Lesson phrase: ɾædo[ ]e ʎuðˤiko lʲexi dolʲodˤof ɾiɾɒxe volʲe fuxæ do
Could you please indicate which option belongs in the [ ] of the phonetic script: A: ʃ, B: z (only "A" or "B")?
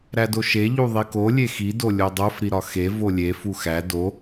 A